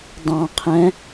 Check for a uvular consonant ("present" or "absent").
present